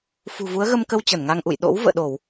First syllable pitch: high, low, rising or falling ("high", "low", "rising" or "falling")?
low